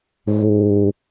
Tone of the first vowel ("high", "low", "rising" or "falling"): high